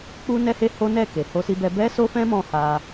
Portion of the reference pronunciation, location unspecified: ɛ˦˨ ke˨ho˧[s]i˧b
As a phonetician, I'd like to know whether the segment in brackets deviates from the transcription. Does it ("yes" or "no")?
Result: no